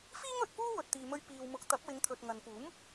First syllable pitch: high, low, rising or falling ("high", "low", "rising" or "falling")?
high